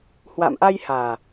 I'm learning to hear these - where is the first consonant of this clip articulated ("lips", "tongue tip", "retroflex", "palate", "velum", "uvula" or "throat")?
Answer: throat